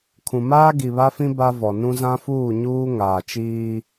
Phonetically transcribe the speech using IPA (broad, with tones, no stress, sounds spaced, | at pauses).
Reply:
kʰ ũ˨ m aː˦ ɡ i˨ β a˦ f ĩ˦ b a˦ v ɔ˨ n ũ˦ z ã˦ f uː˦˨ ɲ uː˦ ŋ aː˨ t͡ʃ iː˦